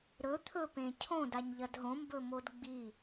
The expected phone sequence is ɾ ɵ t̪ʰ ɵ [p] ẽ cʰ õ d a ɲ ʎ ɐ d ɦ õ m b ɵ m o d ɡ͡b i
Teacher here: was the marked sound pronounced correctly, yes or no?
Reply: yes